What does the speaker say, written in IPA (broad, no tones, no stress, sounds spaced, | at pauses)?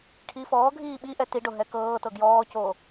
ʈʰ iː f ɔː ɡʱ iː ɓ i ʔ ɛ t i ɖ o ɦ ɛ k ɤː t ɤ ɡ j ɔː c oː